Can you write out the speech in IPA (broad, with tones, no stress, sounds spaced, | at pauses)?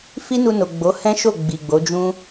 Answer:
f i˦ n u˧ n o˨ ɡ͡b o˨˦ h ɛ̃˦ ʃ o˦˨ ɡ͡b i˨ ɡ͡b o˨˦ d͡ʒ ũ˦